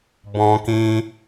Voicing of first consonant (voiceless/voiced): voiced